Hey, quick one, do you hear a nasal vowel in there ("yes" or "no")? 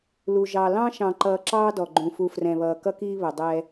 yes